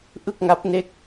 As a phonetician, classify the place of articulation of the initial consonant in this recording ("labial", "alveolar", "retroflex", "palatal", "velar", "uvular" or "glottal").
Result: glottal